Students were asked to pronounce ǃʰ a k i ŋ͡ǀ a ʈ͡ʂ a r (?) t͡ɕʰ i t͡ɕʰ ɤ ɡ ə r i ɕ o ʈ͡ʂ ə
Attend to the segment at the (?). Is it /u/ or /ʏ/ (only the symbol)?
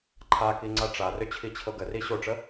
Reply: ʏ